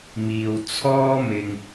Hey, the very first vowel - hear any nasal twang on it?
no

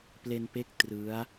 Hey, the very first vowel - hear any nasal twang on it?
no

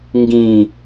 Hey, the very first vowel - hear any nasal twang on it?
yes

